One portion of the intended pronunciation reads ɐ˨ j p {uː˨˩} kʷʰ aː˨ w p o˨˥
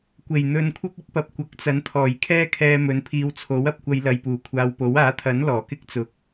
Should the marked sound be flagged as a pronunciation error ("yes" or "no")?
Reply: no